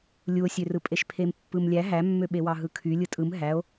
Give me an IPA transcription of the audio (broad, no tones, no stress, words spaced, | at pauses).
lʲuo̯sʲørɯpʼeʃ pʰempːɯmlʲæ ɦæmːø ɓewɑɦɯkʰy lʲɯtʼɯm ɦæo̯